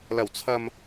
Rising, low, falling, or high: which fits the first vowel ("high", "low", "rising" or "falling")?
low